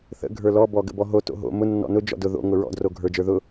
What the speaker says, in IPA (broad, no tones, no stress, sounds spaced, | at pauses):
θ ə̰ ɡʱ ə˞ l ɔ b ɔ ɡ ə̰ b ɔ ɦ o t o̰ ɦ o̰ m ʊ nː ɔ̰ n ʊ d͡ʒ ɔ̰ d ʊ ð o̰ ŋ ʊ ɹ ɔ̰ d r o ɡʱ ə˞ d͡ʒ ə˞ ð ʊ